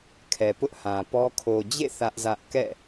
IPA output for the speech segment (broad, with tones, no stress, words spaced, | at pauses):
kʰɛ˨pʊ˦ʔhã˨pɔ˦ kʰo˨d͡ʑḛ˦˨ θä˦ʔzä˦ʔ kɛ̰˦˨